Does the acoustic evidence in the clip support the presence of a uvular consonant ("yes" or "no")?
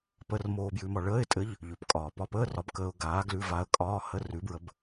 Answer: no